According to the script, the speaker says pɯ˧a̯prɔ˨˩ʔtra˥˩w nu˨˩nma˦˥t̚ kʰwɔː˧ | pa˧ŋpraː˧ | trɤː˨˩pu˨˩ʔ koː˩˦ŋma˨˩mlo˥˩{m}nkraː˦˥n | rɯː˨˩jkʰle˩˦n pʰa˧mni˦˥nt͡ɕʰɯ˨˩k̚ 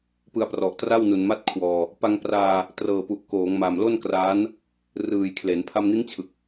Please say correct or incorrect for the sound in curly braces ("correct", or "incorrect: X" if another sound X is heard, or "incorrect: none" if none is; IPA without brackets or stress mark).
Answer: incorrect: none